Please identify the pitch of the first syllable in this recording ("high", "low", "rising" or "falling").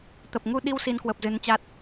low